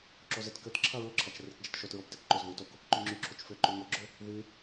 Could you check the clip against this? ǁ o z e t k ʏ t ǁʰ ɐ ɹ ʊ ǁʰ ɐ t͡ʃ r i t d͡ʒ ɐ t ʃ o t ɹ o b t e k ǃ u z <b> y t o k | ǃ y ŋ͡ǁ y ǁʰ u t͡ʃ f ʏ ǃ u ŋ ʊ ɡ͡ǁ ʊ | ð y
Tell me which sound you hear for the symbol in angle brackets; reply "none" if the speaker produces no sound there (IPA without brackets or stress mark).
ð